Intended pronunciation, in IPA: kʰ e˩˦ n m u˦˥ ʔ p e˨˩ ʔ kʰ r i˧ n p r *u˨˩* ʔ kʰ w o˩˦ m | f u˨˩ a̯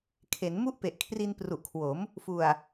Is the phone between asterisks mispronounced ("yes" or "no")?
no